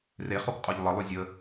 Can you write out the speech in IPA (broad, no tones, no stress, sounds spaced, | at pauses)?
r e χ o k qʼ o ʎ lˠ ɤ lˠ y zʲ ə